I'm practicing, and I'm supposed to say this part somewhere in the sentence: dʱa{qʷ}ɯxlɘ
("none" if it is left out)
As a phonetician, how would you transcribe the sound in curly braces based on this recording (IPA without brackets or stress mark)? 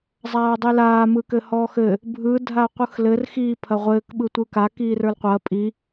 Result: qʷ